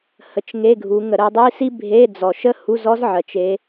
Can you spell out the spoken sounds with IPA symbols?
h ə˨˦ t͡ʃ ŋ e˧˥˧ ɡʱ u˨˦ ŋ ə˧˩˧ ɾ ə˨˦ dˤ i˧˥˧ s i˥ bʱ e˧˥˧ d͡z ɔ˨˩ ʃ ə˥ h u˧˥˧ z ɔ˥ z ʕ ɜ˨˩ t͡ʃ e˨˦

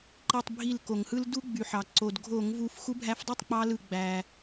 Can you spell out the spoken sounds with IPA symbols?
ǃ i˧˩ tˤ bʱ i˧˩ l k o˩ ŋ h ɯ˦ l d u˦ ɡ͡b y˩ ħ ɑ˩ ǀ o˩ d ɡʱ o˧˩˧ ŋ v u˨˦ f x u˨˦ bʱ æ˨˦ f dˤ e˥˩ tˤ k͡p ɑ˦ l ɯ˧˩ ɡ͡b æ˩

